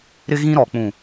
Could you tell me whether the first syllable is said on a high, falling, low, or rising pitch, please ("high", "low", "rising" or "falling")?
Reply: high